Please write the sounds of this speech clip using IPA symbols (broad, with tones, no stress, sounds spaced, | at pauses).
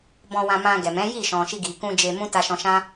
b ɔ̃˧ w ã˧ m ã˧ ɡ ɛ˨ m ɛ̃˨˦ j i˦˨ ʃ ɔ̃˨ ʃ i˧ ɡ i˨ k ũ˧ d͡ʒ e˧ m ũ˦ t a˧ ʃ ɔ̃˧ ʃ ã˦